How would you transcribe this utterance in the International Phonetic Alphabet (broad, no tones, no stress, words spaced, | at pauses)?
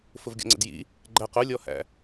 fʊvɡʲɔ̰ŋ͡ǀə̰djḭ | ɡ͡ǃæq ʊlʲɔhæ̰